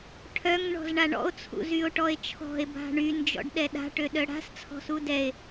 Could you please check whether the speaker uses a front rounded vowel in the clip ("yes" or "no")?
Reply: yes